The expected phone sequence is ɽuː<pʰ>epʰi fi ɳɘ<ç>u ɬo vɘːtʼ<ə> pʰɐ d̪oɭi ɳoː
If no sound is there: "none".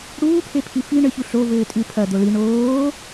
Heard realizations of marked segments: pʰ, ç, ɨ

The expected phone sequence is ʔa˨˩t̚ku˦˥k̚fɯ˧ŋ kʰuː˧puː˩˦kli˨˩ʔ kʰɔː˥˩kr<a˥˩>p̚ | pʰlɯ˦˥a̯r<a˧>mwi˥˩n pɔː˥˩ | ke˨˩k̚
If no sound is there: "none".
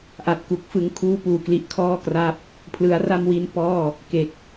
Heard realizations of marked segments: a˥˩, a˥˩

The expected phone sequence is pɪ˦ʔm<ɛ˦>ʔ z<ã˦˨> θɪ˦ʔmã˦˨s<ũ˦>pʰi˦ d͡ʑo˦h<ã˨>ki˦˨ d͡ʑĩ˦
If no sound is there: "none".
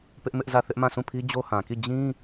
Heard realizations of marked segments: ɪ˦, ä˦˨, ũ˦˨, ã˨

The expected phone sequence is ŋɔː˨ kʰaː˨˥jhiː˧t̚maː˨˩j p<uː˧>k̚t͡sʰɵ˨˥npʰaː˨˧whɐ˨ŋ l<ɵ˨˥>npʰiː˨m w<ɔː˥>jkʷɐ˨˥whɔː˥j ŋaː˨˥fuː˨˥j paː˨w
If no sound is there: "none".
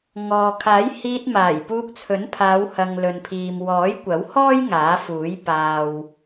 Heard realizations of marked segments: uː˧, ɵ˨, ɔː˨˥

